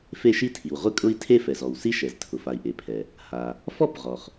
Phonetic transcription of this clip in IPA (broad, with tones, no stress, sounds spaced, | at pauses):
f e˥ ʃ i˥ tʰ i˩ w ʁʷ ɪ˥ kʼ ʊ˥ i̯ tʰ e˥ f ɛ˩ z ɔ˩ w s i˥ ʃ ɛ˩ z tʰ ʊ˩ f a˩ i̯ ʔ e˩ pʰ ɛ˩ | h a˩ | f ɔ˥ p ʁ ɔ˩ χ